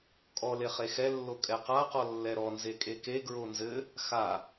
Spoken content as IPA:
kʼ ɔ l e χ e x ɛ lː o kʼ ɛ q a q ɔ lː ɛ ɾ ɔ n z e kʼ e k e ɡ ɹ o n z ɘ | x a

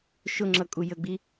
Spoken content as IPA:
ʃ ʊ ŋ͡ǁ ʌ kʼ u j ə ɡ͡b i

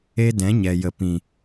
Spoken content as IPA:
e˦ d ɛ̃˨˦ ɲ ɛ˨ j ə˨ p ĩ˨

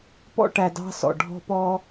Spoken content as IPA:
p ɔ̰˧ ʈ æ˨ d ɑ̤˧ s ɔ̰˨ ɖʱ ɔ̤˧ p ɔ˧

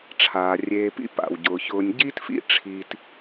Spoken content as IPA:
ʈ͡ʂʰ aː˩ rʲ eː˨ p ḭ˥ p a̰˩ w ɟ ʊː˩ ç ʊː˨ nʲ ɟ iː˥ t f ḭ˥ ʈ͡ʂʰ i˨ t

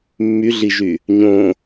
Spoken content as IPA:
mː y ɮ i ʒ y | ɲ õ

